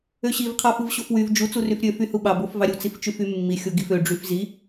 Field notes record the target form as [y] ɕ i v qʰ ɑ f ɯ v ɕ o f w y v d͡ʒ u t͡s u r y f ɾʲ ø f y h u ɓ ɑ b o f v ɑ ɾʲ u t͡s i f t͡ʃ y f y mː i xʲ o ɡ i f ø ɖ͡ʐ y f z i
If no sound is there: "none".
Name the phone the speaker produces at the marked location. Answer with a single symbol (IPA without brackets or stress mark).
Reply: ø